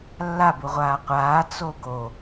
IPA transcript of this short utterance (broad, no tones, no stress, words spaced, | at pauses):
lːabu ʁʷaːqʷaː t͡soɡo